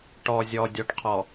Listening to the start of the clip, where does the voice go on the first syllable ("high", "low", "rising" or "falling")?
low